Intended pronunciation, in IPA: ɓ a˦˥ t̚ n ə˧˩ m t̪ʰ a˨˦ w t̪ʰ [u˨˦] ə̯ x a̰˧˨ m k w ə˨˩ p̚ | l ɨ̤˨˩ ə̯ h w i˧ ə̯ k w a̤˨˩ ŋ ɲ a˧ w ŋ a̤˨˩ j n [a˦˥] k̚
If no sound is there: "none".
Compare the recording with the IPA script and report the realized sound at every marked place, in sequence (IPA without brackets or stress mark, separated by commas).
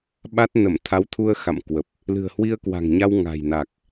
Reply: u˧, a˨˩